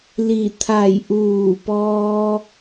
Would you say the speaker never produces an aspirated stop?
no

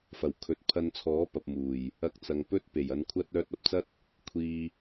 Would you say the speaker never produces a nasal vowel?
yes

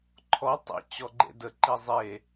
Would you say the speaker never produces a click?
no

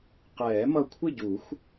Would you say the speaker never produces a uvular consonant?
no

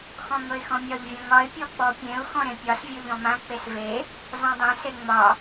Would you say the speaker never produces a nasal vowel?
no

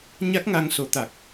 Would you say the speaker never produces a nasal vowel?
yes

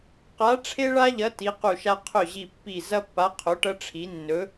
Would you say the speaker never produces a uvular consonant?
no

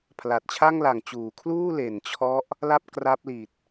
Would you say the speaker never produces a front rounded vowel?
yes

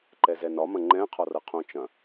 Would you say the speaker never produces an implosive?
yes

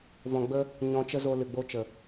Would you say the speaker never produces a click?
yes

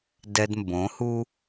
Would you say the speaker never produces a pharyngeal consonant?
yes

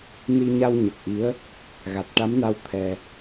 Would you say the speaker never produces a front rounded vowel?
yes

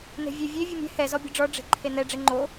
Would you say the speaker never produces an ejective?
yes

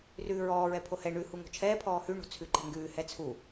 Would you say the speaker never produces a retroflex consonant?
no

